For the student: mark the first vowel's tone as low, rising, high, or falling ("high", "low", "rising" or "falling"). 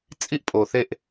high